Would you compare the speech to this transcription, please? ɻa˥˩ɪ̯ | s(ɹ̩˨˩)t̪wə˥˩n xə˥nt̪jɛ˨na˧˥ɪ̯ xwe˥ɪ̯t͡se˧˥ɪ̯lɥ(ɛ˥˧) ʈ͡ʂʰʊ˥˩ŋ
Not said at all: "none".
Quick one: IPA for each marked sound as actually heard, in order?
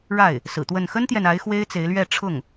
ɹ̩˨˩, ɛ˥˧

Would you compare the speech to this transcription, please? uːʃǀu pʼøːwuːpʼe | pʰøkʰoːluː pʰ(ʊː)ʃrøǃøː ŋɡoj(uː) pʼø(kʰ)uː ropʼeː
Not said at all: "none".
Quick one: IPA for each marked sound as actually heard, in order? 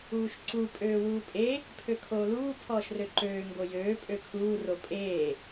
ɔː, øː, kʰ

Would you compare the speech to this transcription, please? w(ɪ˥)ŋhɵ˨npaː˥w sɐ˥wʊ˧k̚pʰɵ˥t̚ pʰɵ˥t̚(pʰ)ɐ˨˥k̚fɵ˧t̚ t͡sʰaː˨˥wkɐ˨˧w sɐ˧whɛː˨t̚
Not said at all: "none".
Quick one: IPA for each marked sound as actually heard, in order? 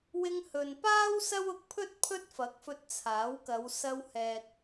ɪ˧, f

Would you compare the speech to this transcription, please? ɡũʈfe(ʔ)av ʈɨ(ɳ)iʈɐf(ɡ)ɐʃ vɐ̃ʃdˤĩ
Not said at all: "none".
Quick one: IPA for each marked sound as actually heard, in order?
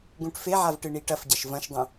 ʕ, ɳ, ɟ

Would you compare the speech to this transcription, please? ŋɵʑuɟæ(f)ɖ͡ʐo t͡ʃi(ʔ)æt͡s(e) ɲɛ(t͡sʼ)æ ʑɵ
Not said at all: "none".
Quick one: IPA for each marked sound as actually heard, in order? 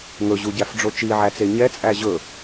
f, ʕ, e, t͡sʼ

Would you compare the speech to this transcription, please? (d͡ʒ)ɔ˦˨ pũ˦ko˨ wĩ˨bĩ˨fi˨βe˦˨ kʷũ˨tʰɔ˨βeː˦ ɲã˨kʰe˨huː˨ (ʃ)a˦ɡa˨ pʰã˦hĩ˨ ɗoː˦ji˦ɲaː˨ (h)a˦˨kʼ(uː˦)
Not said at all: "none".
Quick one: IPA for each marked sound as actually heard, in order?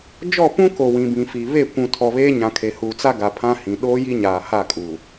d͡ʒ, t͡s, h, uː˨

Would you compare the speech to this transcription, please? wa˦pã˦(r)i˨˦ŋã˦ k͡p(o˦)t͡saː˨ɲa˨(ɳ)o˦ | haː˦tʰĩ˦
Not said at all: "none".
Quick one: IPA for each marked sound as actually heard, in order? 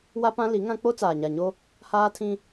l, o˦, ɲ

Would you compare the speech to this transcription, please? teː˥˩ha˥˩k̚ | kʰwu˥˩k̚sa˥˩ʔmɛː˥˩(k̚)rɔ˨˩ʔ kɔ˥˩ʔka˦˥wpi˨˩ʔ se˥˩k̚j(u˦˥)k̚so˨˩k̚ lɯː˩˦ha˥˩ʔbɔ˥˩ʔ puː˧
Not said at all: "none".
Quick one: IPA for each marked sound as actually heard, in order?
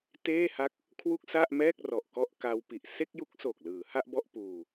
k̚, u˦˥

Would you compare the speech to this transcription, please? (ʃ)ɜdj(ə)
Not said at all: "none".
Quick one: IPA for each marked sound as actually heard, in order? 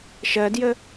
ʃ, ə

